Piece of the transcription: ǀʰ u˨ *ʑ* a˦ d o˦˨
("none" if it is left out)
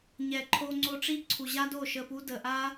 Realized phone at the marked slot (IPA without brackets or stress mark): ʑ